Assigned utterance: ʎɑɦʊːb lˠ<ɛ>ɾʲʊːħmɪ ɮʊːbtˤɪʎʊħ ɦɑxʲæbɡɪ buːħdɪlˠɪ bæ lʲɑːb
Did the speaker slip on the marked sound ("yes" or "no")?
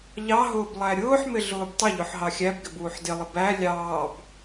yes